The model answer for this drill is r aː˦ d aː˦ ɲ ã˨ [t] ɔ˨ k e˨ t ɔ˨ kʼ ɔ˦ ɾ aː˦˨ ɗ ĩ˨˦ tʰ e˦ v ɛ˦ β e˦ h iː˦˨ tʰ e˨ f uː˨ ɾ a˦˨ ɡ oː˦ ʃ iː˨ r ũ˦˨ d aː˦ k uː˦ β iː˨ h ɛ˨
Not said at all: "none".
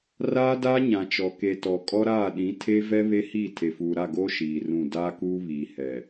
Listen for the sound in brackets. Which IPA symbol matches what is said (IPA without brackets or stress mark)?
t͡ʃ